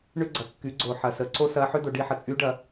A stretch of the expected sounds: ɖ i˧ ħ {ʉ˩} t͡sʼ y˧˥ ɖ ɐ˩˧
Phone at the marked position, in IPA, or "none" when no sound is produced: ə˩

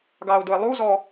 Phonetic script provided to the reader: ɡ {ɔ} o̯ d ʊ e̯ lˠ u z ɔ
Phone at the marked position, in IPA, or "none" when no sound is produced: ɑ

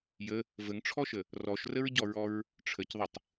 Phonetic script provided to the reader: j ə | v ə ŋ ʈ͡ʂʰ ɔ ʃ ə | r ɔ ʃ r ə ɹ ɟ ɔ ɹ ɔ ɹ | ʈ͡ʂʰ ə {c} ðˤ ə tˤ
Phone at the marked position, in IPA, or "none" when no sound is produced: c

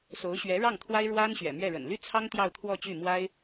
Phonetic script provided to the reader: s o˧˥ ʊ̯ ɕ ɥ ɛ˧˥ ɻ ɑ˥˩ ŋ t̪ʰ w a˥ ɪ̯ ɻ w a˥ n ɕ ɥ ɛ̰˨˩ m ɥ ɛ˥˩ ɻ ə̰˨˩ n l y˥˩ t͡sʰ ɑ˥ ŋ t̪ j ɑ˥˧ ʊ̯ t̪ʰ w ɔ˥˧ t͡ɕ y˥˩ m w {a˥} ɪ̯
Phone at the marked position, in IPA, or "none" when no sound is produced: a˥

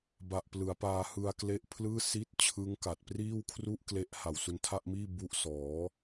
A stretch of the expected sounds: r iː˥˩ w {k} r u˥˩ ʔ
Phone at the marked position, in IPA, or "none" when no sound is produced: kʰ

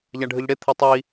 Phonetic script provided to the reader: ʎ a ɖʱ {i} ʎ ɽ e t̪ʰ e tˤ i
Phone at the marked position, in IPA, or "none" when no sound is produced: ɨ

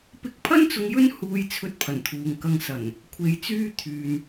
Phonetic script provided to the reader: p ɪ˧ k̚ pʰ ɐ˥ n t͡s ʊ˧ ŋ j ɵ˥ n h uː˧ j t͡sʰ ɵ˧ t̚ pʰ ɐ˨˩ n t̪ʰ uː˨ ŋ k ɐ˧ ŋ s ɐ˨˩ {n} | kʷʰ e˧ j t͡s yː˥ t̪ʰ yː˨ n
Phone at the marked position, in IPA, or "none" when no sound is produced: n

